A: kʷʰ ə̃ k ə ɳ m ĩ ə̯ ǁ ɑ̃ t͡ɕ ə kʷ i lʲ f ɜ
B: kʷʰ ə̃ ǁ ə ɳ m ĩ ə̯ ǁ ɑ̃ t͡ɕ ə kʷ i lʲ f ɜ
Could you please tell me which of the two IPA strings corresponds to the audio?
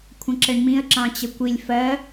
B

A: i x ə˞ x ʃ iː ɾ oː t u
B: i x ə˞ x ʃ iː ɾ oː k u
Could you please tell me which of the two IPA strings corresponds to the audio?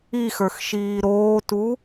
A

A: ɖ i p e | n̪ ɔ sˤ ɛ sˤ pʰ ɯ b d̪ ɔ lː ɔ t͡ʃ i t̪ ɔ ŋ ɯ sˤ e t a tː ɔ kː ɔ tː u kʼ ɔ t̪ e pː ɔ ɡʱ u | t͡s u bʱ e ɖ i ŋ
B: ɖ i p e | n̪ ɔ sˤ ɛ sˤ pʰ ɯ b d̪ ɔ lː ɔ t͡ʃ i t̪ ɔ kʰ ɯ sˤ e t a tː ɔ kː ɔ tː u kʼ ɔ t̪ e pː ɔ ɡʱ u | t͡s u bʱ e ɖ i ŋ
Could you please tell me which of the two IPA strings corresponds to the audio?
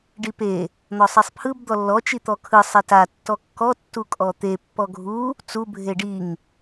B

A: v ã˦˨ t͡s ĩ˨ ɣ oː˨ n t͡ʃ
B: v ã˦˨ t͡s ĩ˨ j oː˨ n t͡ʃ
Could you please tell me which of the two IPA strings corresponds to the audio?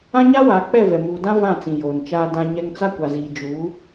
B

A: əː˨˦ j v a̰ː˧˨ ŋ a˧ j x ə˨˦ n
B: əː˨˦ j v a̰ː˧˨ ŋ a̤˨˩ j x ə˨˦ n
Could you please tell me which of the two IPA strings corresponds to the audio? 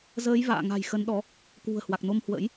B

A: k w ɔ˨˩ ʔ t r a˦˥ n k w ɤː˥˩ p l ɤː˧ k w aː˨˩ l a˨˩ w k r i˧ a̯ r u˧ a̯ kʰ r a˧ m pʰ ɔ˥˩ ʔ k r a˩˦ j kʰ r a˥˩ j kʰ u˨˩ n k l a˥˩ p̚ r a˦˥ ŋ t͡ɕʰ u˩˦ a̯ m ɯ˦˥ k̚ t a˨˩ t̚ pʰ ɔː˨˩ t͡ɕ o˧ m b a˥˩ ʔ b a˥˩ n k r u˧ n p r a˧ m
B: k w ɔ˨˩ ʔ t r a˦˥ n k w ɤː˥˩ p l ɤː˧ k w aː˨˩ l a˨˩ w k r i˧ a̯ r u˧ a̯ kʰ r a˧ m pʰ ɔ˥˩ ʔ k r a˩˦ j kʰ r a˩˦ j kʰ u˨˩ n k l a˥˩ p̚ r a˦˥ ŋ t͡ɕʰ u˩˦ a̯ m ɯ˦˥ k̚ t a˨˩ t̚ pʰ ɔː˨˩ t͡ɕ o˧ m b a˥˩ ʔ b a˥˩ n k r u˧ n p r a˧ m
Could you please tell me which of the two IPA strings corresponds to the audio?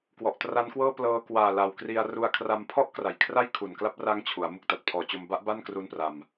A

